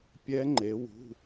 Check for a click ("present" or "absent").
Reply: present